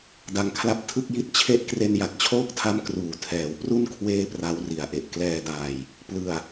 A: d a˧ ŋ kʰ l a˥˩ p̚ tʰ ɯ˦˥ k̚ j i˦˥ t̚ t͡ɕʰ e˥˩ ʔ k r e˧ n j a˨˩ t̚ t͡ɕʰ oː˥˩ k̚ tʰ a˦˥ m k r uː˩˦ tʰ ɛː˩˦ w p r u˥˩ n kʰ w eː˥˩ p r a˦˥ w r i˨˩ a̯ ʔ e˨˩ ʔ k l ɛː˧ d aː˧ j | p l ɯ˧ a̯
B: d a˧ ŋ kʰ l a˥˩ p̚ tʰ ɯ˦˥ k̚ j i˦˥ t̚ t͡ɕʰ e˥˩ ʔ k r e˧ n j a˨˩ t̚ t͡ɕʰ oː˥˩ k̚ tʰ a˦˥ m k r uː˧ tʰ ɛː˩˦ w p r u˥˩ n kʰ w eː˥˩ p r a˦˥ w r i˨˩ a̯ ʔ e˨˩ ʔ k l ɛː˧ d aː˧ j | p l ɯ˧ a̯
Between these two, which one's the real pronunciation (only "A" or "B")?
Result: A